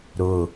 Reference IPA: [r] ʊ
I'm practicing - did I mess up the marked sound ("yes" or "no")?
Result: yes